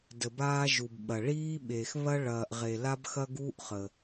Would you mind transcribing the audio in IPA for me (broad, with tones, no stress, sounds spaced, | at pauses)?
d ə˩ b aː˧ ʒ u˩ b ɓ ɐ˩ ɭ iː˧ ɓ eː˩ x β ɐ˧ ɭ ɐː˩ ʔ ʁ e˩ l a˧ b x ɐ˧ ɡ uː˧ ʔ χ ə˩